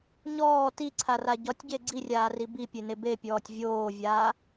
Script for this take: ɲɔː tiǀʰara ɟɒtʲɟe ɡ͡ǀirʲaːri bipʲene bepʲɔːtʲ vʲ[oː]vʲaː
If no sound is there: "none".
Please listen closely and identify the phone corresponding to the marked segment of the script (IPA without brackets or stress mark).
oː